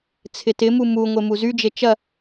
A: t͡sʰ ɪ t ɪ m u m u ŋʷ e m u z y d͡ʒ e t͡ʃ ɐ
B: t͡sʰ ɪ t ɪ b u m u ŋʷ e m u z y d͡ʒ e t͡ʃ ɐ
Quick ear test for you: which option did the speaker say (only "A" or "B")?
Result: A